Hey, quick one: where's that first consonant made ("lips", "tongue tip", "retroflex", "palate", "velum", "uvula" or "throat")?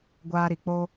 velum